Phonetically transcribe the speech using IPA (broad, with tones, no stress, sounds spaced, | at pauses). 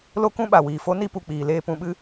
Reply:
l o˦ k ũ˦ ɓ a˨ w iː˨ f o˦ n i˦ p u˨ k͡p iː˨ l eː˧ p ũ˧ ɓ ɨ˦